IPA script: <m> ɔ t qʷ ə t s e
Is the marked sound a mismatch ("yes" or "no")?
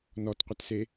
yes